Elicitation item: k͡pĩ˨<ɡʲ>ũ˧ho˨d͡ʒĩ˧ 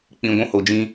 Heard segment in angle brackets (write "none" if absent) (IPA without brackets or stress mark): ɡʷ